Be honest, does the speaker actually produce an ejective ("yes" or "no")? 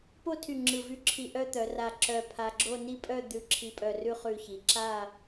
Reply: yes